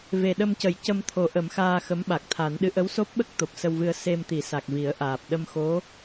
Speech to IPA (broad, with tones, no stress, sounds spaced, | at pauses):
v e˨˩ ɗ ə˧ m c ə˨˩˦ j c ə˧ m t̪ʰ o˨˩˦ ʔ ə˨˩˦ m x aː˧ x ə˧˥ m ɓ a˨˩ k̚ t̪ʰ a˨˩˦ n ɗ ɨ˧˥ ʔ ə˧˥ w s o˦˥ p̚ ɓ ə˦˥ k̚ t̪ o˨˩ p̚ s ə˧ w v ɨ˧ ə̯ s e˧ m t̪ i˨˩˦ s a˨˩ k̚ v i˨˩˦ ə̯ ʔ aː˨˩ p̚ ɗ ə˧ m x o˧˥